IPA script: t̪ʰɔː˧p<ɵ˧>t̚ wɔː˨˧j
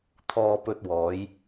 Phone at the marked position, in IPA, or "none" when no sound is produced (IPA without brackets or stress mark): ɵ˧